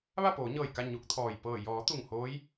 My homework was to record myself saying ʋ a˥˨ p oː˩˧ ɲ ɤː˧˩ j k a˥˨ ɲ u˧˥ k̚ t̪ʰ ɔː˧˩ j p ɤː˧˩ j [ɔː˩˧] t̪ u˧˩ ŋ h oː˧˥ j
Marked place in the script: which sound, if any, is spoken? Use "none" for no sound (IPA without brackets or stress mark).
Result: ɔː˩˧